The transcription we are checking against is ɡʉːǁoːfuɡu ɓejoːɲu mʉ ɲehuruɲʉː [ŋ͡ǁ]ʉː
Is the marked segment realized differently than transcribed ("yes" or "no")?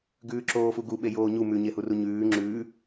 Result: no